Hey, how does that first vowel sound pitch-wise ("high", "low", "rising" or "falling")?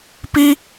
high